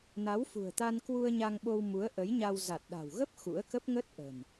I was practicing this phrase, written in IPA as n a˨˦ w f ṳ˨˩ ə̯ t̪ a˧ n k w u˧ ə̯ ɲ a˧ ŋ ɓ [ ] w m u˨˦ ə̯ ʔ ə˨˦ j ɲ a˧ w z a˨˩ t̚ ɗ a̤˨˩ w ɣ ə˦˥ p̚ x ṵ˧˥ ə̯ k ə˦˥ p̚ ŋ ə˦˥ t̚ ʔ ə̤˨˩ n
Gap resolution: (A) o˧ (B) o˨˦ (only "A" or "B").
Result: A